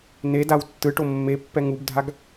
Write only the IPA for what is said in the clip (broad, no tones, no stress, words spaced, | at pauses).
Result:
nedaw tːɯʈo mːepːɛ ŋubdʱaɡ